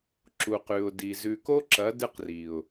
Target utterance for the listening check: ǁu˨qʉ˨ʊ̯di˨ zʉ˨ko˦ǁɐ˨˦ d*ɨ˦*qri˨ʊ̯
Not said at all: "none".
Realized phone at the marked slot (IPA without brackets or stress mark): ɨ˦